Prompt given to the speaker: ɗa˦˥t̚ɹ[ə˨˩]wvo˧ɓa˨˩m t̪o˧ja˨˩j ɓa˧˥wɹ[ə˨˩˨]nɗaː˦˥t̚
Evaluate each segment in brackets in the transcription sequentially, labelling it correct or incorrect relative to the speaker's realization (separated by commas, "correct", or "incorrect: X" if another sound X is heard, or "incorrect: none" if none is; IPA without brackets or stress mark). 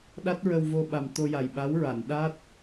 incorrect: ə˧, incorrect: a˨˩˨